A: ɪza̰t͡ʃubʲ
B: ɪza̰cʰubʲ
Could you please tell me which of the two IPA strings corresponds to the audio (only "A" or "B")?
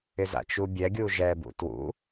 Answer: A